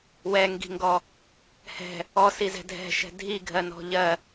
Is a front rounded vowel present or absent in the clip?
absent